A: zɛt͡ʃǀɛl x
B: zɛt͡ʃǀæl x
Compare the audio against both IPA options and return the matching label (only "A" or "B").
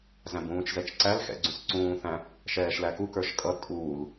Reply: B